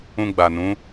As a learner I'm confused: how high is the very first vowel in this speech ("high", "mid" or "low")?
high